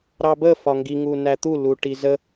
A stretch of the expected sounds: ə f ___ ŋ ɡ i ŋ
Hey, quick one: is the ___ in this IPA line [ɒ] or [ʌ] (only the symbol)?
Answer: ɒ